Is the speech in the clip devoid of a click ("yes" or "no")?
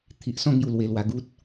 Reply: yes